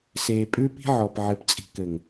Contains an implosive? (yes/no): no